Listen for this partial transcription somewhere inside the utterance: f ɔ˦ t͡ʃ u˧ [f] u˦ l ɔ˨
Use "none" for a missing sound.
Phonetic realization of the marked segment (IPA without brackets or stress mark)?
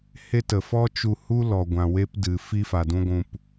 h